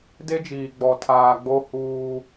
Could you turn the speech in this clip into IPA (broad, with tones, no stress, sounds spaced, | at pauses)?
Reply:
d e˦ d͡ʒ iː˨ ɡ͡b ɔ˨ tʰ aː˨ ɡ͡b o˦ h uː˦